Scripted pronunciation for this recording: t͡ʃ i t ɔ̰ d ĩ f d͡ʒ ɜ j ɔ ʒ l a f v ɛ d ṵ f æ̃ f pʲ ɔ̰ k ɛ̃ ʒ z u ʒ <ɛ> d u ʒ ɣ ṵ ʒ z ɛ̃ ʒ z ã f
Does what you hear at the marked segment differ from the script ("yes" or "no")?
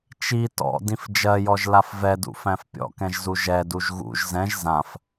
no